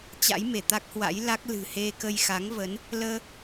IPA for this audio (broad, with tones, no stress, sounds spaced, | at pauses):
t͡ɕ a̰˧˥ j m e˧˩ t̪ a˦˥ k̚ h w a̰˧˥ j l a˦˥ k̚ l ɨ̤˨˩ h e˧ k ə˧ j x a˨˦ ŋ v ə˨˦ n | l əː˧